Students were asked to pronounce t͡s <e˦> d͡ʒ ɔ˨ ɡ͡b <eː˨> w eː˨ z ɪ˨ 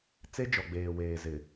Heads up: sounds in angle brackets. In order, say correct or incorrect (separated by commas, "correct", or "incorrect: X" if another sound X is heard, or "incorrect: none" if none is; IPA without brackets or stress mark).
correct, correct